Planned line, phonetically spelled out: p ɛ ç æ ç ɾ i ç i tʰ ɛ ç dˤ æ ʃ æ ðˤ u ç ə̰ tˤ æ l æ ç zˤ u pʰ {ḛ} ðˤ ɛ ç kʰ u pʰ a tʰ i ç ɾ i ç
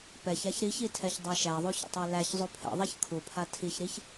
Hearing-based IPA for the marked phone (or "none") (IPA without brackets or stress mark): ɛ̰